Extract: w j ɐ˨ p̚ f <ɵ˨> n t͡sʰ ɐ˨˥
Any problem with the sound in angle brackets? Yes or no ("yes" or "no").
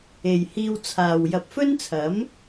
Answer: yes